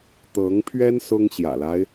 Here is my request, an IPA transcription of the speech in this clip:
t̪ɤ˧˥ŋpʰɥɛ˥n sʊ˥ŋɕjä̰˨˩la˦ɪ̯

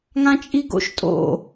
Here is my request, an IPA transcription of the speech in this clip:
ŋãt͡ʃʼiɡo̰ʃ tʼo̰

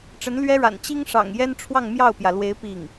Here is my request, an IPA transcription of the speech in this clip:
ʈ͡ʂə˧˥nlɥɛ˥ɻa̰˨˩n t͡ɕi˥ŋʂɑ̰˨˩ŋ jɛ˥nʈ͡ʂʰwɑ˥˧ŋ mjɑ˥˩ʊ̯pjä˩lwe˧˥ɪ̯ pi˥˩ŋ

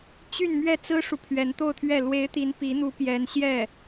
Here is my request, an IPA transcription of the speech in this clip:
t͡ɕy˥˧nmɥɛ˥˩ t͡sɹ̩˥ʂu˨pʰɥɛ˧˥n t̪o˥˧ʊ̯t̪ʰɥɛ˥˩ lwe˧˥ɪ̯t̪i˧˥n pi˧˥n̪u˧˥ pjɛ˧˥nɕjɛ˥˩

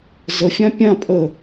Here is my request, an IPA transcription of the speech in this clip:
zəfʲã pʲã pʼə

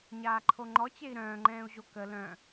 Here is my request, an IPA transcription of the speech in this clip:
ɲaːǃʰoŋ͡ǃɔ t͡ɕei̯ɾœ̃ːŋ͡ǃɛ̃ːu̯ʑo kə lœ̃

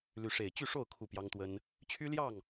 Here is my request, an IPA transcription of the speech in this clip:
ly˨˦ʂe˨˩ɪ̯ t͡ɕy˥˨ʂo˥˨ʊ̯ kʰu˥˨pjɑ˦ŋt̪wə˦n | t͡ɕʰy˦ljɑ˥˨ŋ

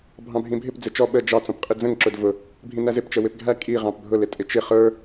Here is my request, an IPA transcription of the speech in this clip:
bʱɑ̃bʱĩbʱɪp d͡zɪt͡ʃɔ ɓə d͡ʒɑ t͡sɔ̃pqʼid͡zə̃ŋ ǁʊdvʊ | bʱĩnæzɪp t͡ʃəwɪpɡʱæ kʼi ʁɑ̃pbʱʊ lɪtʼɪt͡ʃɪ χə˞

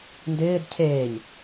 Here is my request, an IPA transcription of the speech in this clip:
ndɪːd cʰeːɲ

